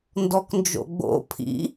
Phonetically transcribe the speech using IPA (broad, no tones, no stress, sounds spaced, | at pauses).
n d ɔ k n d͡ʒ o̰ ɡ͡b o̰ pʰ ḭ